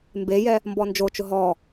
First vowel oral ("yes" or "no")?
yes